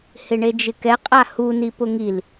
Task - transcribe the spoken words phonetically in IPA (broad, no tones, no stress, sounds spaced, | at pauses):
h ɪ ɳ e d͡ʒ ɪ k ɛ qʼ a h u n i p ʊ ŋ i l